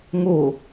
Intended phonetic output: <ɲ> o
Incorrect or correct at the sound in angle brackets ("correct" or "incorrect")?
incorrect